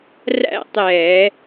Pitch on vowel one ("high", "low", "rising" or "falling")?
falling